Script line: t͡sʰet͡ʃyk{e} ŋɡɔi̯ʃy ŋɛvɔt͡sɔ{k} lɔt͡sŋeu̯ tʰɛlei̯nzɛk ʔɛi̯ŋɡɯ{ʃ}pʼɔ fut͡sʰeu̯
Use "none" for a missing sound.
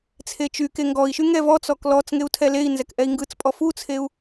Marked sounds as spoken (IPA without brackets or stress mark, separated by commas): e, k, t͡s